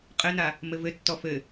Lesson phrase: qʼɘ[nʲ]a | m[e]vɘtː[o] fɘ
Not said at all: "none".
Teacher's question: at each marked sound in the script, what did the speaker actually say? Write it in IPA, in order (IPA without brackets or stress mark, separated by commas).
n, ɘ, ɔ